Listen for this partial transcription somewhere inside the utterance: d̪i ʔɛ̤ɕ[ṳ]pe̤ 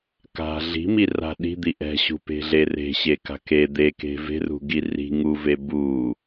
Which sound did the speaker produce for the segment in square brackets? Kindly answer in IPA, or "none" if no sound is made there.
ṳ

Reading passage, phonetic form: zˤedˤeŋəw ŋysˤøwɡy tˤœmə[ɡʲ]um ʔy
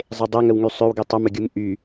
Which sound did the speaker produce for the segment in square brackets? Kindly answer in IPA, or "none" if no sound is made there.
ɡʲ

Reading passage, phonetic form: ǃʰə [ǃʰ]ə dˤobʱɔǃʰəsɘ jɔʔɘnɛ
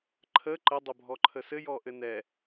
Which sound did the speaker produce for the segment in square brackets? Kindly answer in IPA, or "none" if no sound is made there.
ǃ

